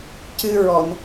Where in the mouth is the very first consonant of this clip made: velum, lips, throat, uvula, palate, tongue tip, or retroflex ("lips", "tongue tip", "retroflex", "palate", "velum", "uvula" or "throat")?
palate